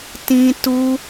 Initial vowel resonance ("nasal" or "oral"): nasal